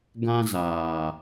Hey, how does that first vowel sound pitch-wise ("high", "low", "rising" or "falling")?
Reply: high